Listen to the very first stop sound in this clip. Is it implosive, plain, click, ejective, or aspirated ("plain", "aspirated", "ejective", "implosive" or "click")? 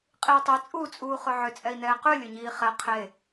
ejective